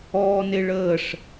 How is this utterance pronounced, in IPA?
ɔː n e ɭ əː ʂ

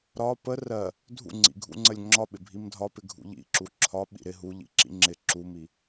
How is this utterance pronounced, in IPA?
ɾ ɒ p ə r ɜ | dʱ ṵ ŋ͡ǀ ḭ ɡʱ ṵ ŋ͡ǀ ə lʲ ŋ͡ǁ ɒ ɓ ɪ bʱ i m dʱ ɒ p ɪ ɡʱ ṵ ʎ ḭ ǁ u ǁʰ ɒ ɓ ḭ ɾ ɪ ɦ u ʎ ḭ ǁ ḭ ŋ͡ǁ ɪ ǁ u m i

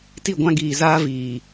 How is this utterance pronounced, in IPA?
t i˦˨ ɡʷ ã˦ ɡ iː˨ z aː˦ v iː˨

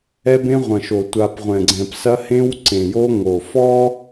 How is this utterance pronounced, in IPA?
ɛ˦ b ẽ˦ ʁʷ ɐ̃˨ ʃ o˨ tʷ a˦ p ʁʷ ɛ̃˨ ɡ͡ǀ ɛ̃˨ p s ɐ˦ h ẽ˦ w ǀ ẽ˨ j o˦ ŋ o˨ f ɔ˦

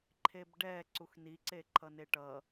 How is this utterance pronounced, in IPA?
ǃʰ e b ɖ ɛ ǀ u x n i ǀ e ǃʰ ʌ n e ʈ ʌ

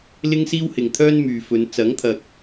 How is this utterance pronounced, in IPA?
l ɪ˥ ŋ s iː˥ w h ɪ˨ ŋ t̪ʰ œː˥ n m yː˨ f ɵ˨˧ n t͡s ɐ˨˥ ŋ t̪ʰ ɐ˨ k̚

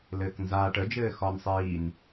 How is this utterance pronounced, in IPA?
l ɘː k n z aː ʈ ə d͡ʒ ɘː x ɒ n sˤ iː n

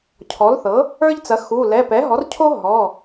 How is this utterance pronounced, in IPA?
cʰ ɔ˩˥ l θ ɤ˩˥ | ə˞˦ ʎ t͡s ɐ˩˥ x u˩˧˩ l ɛ˩˧˩ p ɛ˩˥ ɦ ɔ˩˥ r cʰ o˦ ɦ ɔ˩˧˩

